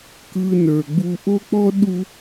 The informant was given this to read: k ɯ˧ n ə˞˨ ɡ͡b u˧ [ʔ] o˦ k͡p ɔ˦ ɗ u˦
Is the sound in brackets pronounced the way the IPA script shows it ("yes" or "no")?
yes